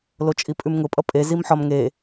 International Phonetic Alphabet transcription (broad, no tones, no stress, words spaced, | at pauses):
lot͡ʃʼipʼʉmŋʊ pʼʌpʼe zimħɒm ŋe